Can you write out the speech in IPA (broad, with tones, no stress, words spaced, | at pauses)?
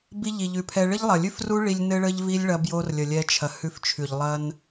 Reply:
bi˧ ʎi˨ʎʉ˨pʰɛ˧ ɭɘ˦ʎlˠɐ˨lʲʉ˦f ru˦ɭi˧lʲ nɘ˦ɭə˦ʎvi˦lʲ ɭɐ˧bjo˧rlʲə˨ lʲɛ˧ t͡ʃʰɐ˨hʉ˧ft͡ʃʰʉ˨ʎ lˠɐ˦n